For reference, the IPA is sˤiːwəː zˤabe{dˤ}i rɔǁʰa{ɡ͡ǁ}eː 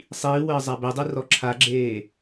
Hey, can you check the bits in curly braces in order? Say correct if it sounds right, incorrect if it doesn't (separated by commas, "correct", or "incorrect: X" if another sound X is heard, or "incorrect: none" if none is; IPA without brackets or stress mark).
correct, correct